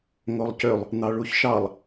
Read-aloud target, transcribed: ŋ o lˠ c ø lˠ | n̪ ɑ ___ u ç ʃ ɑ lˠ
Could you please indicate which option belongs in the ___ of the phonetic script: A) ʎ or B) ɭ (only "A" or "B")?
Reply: B